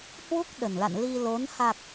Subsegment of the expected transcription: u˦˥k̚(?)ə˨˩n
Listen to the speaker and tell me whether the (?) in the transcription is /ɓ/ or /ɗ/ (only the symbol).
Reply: ɗ